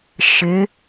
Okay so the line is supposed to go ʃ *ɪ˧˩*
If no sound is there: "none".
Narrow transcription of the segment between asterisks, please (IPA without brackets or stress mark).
ɪ˨˥